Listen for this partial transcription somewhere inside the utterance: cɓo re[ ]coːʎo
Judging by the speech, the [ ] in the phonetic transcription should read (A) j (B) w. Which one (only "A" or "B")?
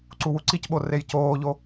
A